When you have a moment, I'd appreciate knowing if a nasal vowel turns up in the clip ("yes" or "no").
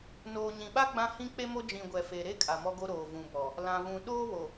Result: yes